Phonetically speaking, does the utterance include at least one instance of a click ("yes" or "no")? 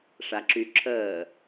yes